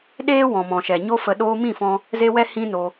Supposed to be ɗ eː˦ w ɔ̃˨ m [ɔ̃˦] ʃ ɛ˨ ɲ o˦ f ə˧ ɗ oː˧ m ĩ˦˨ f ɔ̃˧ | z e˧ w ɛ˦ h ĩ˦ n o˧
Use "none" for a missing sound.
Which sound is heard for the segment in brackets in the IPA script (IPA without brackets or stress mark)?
ɔ̃˨